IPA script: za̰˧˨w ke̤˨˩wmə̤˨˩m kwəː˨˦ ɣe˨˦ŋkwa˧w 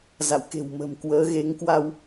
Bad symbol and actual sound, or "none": none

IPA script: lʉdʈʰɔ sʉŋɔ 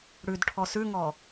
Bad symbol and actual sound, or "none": l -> ɽ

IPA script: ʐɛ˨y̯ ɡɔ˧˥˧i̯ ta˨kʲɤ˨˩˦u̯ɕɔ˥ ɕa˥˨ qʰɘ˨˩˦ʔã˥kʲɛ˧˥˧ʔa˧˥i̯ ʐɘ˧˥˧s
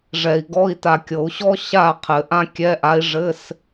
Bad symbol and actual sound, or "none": y̯ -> i̯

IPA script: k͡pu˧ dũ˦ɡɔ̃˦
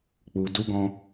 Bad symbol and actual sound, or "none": ũ˦ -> u˦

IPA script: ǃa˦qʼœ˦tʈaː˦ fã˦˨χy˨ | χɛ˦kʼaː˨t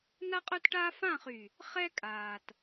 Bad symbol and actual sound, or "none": ǃ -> n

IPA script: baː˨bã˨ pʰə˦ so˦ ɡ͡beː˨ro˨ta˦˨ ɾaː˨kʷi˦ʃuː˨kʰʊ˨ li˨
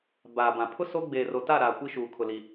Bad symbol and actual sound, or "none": ə˦ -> ʊ˦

